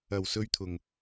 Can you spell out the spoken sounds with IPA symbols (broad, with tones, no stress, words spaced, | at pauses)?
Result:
ɐ˨˩wsɵ˧ɥt̪ʰʊ˨˩ŋ